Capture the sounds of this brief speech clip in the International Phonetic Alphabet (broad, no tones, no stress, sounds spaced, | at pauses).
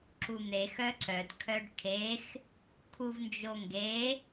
ǁ u n̪ e x œ ǀ œ d kʰ œ ɖ kʰ e x | kʰ u v n d͡ʒ o ŋ ɡ e